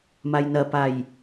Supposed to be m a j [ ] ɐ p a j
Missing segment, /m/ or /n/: n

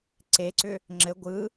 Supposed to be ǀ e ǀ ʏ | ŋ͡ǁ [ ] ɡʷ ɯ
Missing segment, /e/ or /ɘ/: ɘ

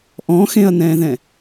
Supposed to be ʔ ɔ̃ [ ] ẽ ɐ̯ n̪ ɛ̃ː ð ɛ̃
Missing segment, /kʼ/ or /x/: x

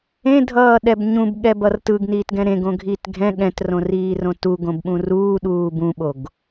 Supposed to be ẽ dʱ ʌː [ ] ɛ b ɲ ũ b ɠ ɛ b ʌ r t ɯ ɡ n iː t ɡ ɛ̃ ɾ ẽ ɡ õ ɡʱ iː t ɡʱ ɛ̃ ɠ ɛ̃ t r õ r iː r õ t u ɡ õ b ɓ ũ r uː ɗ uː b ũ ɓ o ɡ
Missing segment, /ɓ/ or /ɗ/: ɗ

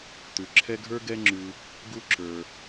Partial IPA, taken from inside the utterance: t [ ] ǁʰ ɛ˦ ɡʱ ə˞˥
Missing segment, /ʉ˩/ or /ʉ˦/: ʉ˩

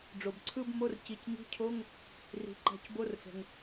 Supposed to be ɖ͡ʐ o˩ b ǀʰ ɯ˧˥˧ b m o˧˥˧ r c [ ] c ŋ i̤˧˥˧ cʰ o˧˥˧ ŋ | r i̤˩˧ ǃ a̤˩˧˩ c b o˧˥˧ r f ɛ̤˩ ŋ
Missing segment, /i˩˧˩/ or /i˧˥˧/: i˩˧˩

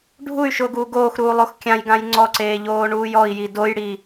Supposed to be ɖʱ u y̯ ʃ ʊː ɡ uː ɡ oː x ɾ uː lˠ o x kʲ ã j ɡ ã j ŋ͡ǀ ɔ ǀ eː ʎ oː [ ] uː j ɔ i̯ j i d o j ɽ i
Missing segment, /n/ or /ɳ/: ɳ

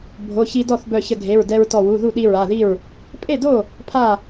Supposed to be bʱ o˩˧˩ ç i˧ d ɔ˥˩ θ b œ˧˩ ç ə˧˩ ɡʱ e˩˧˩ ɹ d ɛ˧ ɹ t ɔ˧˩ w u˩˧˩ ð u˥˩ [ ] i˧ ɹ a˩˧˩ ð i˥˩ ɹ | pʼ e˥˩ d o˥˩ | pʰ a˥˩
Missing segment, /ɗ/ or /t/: ɗ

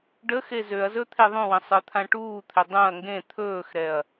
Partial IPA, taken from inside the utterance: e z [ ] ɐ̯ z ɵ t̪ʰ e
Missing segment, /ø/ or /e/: ø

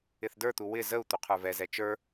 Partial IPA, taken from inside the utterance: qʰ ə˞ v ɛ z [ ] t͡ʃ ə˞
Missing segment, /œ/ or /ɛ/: ɛ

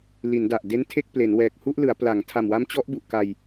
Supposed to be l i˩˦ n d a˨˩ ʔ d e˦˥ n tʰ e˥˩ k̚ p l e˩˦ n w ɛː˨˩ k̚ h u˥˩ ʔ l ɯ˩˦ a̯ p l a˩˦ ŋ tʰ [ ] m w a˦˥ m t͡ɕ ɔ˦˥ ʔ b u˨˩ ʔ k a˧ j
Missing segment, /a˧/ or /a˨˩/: a˨˩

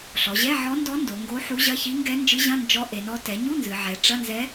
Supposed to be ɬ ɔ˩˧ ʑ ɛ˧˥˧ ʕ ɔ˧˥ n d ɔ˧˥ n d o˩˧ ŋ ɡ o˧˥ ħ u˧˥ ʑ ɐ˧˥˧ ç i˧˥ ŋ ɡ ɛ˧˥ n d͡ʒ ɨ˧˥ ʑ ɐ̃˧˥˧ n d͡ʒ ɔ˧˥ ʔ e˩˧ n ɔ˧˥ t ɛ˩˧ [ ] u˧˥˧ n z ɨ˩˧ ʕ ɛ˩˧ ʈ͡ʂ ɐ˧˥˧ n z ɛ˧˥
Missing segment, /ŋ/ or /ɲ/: ɲ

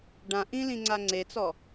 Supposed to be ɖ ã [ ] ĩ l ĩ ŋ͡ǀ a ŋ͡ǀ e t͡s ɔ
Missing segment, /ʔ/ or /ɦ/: ʔ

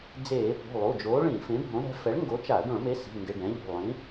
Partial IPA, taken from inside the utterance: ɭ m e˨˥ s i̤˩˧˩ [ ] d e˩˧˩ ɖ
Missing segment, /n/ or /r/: n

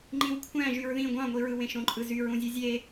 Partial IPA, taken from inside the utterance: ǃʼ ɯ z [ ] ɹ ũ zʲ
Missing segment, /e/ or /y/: y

